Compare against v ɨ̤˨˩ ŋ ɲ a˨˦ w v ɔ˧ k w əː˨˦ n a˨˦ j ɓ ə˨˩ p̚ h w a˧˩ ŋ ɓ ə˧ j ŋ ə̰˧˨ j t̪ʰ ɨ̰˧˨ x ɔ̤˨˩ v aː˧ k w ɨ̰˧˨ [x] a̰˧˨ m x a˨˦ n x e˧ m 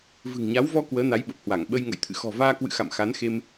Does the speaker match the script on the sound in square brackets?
yes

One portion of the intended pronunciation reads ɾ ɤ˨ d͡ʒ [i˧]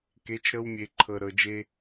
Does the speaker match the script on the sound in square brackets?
no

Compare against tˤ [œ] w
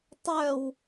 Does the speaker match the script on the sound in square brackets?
yes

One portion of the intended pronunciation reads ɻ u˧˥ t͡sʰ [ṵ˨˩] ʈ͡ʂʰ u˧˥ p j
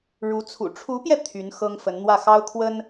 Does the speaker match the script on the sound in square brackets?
yes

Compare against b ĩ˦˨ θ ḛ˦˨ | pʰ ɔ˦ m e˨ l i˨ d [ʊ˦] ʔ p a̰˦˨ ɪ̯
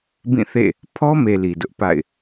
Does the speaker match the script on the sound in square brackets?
yes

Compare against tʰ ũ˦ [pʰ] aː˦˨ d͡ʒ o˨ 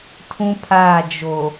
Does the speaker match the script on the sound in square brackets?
yes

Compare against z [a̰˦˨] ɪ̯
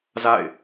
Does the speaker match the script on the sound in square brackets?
yes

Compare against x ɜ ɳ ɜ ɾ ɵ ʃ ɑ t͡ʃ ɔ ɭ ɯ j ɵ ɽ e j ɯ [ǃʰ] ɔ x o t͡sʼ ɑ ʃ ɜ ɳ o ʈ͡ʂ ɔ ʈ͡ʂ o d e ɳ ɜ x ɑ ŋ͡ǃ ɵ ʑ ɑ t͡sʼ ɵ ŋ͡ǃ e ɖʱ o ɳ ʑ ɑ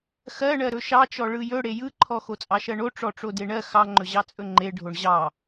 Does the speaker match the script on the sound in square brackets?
yes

